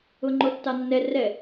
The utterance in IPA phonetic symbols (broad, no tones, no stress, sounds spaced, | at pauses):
ʊ ŋ͡ǃ o tː ɑ nː ɛ r ɛ